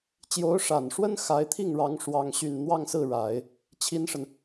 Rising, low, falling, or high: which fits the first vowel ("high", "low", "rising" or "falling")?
rising